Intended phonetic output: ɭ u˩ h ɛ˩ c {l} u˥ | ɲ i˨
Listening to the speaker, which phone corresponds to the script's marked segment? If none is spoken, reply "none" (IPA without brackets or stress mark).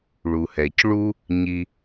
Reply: ɭ